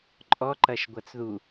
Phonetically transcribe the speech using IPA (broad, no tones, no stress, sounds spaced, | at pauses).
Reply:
ǃʼ ɔ ǃ ɐ ʃ ɡʷ ɐ t͡s ð u